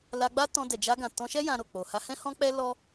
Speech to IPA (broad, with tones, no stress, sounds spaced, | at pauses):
l a˧ ɡ͡b a˦ t ɔ̃˧ d ɛ˨ d͡ʒ a˧ ɡ ã˨ t ɔ̃˧ ʃ ɛ˦ j ã˧ ɾ o˨ k͡p o˨ h a˧ h ɛ̃˦ h ɔ̃˦ k͡p ɛ˦ l ɔ˦